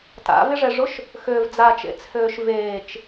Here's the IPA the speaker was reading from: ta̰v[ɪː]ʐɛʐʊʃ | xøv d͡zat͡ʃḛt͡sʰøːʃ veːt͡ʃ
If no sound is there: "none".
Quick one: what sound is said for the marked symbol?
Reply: ɪ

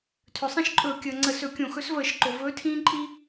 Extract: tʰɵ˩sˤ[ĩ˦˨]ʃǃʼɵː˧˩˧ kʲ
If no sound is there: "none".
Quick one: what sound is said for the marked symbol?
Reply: ĩ˦˨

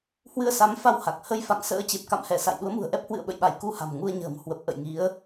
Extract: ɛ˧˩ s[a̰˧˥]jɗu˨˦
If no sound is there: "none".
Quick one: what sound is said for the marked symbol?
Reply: a̰˧˨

